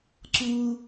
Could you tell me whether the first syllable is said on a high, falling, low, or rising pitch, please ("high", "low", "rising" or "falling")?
low